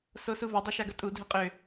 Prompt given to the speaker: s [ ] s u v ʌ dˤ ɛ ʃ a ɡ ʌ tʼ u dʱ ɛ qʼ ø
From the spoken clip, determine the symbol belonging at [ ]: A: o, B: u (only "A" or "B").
A